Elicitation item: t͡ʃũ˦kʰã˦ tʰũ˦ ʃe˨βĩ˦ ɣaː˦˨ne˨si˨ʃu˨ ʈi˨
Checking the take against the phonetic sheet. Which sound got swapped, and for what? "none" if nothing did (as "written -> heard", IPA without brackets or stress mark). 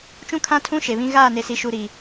ʈ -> ɾ